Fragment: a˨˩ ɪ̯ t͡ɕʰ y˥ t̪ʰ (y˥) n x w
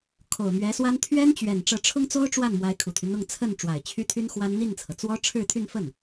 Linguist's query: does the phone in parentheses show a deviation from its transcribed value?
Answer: no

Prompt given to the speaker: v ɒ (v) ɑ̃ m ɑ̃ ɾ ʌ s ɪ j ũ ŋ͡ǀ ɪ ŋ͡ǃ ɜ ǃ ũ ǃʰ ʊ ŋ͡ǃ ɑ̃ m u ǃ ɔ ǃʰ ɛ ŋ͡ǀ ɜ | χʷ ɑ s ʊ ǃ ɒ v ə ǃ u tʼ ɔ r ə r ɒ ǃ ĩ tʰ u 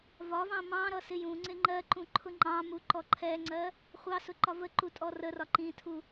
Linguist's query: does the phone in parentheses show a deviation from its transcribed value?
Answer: no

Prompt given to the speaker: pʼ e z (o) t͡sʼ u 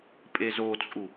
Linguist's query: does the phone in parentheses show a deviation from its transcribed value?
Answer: no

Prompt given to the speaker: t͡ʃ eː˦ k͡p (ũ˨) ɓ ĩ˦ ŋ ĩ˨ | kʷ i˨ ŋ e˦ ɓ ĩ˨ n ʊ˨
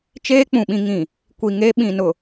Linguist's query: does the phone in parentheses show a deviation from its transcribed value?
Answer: no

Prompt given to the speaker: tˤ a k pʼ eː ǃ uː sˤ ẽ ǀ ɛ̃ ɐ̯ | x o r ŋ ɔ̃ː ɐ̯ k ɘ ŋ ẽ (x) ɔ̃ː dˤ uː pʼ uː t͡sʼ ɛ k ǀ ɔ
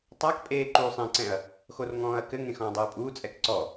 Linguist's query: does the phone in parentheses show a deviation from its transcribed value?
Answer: no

